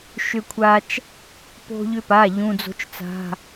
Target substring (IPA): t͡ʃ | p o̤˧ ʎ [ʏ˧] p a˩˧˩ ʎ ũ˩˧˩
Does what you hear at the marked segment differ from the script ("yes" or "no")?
no